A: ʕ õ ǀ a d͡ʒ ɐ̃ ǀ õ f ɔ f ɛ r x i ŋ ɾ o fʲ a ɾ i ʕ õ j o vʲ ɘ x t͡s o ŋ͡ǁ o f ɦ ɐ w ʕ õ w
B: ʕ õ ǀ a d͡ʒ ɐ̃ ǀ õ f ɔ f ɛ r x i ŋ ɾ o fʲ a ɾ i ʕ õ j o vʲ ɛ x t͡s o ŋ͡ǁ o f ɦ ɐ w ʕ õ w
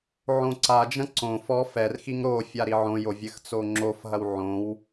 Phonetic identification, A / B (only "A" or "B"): A